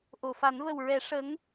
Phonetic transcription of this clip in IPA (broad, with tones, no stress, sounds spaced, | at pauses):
ʔ o˨˩˨ f a˨˩˦ n v ə˨˩ w ɹ ɛ˨˩˦ ʂ ə˧˥ ŋ